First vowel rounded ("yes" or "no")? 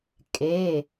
no